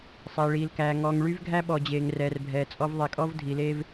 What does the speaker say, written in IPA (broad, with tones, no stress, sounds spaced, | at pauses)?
sˤ ɛː˨ ɭ iː˨ l k æː˨ ŋ ɔː˨ ŋ ɭ y˦ v ɡʱ æ˦ ɓ ɔ˨ d͡ʑ eː˨ ŋ r ɛː˨ r bʱ ɛː˨ t͡sʼ ɔ˦ v ðˤ e˨ kʼ ɔ˦ v dʱ i˨ l eː˦ v